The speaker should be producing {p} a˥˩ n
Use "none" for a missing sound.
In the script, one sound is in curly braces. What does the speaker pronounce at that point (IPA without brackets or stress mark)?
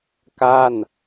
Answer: k